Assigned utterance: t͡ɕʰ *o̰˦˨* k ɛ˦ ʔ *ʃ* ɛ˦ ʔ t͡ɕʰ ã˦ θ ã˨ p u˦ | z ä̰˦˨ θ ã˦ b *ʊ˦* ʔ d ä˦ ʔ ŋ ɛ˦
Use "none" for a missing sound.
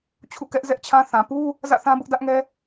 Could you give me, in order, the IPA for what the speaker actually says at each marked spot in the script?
ṵ˦˨, z, ʊ˦

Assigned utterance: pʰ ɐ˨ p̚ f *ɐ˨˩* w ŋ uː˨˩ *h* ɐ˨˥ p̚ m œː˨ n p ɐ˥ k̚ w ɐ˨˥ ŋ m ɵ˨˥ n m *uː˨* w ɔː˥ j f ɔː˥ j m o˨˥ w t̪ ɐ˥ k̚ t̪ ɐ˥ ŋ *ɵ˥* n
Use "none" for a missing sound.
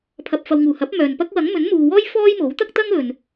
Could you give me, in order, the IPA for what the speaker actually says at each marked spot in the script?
ɐ˨, h, uː˨, ɵ˨

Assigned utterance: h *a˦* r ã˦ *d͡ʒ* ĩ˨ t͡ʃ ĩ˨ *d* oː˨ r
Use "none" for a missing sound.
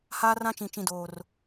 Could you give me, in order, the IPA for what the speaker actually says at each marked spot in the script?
aː˦, t͡ʃ, d

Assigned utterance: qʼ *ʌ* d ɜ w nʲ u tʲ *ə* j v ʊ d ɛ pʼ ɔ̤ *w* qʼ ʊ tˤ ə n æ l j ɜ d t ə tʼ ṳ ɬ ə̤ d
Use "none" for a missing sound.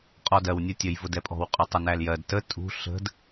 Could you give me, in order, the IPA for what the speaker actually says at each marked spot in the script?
ɔ, ə, w

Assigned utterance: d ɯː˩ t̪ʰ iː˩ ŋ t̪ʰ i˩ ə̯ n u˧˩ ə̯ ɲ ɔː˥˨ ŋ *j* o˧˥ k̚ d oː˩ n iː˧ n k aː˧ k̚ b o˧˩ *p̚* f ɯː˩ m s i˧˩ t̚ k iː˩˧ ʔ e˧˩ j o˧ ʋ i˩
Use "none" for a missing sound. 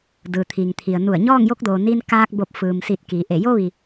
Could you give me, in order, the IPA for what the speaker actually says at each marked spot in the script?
j, p̚

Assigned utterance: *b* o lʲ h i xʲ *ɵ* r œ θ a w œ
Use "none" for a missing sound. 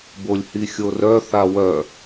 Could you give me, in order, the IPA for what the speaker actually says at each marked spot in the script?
b, o

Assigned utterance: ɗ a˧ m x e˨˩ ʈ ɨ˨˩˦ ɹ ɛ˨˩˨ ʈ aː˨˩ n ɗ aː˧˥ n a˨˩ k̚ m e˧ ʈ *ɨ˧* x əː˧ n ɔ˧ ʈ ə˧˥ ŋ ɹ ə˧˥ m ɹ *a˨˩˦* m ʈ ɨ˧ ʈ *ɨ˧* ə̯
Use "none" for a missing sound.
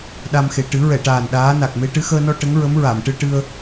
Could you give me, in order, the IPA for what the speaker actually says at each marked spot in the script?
ɨ˧, a˨˩˨, ɨ˧

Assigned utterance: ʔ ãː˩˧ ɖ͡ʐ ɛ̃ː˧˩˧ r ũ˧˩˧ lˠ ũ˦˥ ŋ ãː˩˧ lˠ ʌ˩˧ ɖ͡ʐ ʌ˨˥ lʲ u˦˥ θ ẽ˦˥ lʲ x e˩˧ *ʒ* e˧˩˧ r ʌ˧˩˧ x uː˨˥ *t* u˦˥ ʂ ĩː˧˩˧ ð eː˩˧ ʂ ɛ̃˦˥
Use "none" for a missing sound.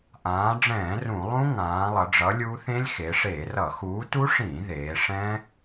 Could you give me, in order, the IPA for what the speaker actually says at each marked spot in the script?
ʂ, t

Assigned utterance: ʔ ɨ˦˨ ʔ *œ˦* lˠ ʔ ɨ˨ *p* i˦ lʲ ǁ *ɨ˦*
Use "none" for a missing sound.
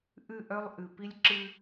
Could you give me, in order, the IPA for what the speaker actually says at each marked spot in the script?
œ˦, p, ɨ˦

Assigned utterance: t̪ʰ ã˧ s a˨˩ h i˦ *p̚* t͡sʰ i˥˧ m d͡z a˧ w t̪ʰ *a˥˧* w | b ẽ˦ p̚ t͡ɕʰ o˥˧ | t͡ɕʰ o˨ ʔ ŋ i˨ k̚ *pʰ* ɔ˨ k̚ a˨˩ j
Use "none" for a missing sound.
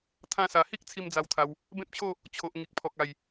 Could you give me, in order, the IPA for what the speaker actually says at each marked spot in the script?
k̚, a˧, pʰ

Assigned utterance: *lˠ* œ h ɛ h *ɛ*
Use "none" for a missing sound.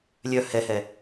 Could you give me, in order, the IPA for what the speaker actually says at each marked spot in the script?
lʲ, ɛ

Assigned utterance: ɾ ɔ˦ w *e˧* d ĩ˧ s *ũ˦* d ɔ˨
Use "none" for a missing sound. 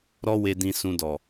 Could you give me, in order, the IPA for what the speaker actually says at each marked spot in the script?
e˧, ũ˧

